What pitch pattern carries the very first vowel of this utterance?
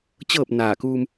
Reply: falling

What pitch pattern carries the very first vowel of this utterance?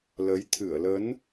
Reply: rising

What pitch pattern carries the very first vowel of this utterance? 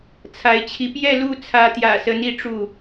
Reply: rising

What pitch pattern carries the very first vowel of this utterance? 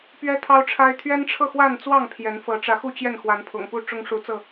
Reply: high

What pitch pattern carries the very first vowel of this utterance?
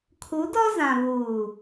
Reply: rising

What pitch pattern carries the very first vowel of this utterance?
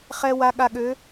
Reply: low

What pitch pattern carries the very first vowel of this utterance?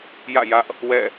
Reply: falling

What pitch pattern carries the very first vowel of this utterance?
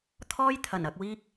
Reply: high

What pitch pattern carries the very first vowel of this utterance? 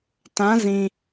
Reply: rising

